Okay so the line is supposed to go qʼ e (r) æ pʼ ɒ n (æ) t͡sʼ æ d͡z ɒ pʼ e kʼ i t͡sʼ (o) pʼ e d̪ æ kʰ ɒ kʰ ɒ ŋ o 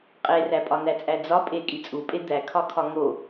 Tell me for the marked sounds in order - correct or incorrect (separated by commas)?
correct, correct, incorrect